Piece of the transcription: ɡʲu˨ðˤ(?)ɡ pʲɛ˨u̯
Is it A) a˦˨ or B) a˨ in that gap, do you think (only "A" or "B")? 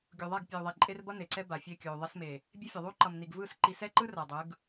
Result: A